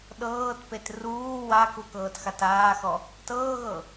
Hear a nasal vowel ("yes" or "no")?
no